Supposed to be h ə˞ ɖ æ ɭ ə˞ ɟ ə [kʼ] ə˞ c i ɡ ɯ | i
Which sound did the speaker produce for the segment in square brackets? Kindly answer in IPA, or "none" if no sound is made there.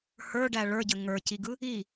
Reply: ŋ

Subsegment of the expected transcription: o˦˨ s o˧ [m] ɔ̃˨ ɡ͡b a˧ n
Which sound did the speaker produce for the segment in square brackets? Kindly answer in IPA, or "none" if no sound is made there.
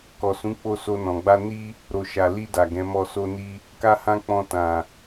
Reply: n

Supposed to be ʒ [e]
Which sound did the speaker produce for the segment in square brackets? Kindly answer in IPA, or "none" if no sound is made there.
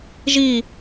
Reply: i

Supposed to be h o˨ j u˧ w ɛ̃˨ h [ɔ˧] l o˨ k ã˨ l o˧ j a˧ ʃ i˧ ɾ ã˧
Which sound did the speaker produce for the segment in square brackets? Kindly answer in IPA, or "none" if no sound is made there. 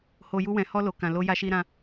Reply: ɔ˧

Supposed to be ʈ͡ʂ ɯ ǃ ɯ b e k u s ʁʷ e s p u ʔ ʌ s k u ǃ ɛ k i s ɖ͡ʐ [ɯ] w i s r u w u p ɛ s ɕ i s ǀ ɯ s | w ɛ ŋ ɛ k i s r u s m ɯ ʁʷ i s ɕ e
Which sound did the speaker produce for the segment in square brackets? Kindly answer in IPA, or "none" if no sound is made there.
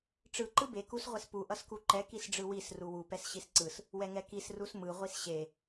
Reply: ɯ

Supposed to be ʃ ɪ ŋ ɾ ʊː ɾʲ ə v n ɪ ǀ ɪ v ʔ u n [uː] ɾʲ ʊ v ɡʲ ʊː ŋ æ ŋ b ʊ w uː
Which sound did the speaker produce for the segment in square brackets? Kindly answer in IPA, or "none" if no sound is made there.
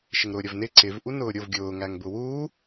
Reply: ʊː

